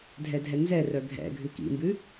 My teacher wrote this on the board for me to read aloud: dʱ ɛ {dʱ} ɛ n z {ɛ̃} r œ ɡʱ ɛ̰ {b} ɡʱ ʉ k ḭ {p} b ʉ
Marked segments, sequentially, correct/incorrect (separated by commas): correct, incorrect, incorrect, incorrect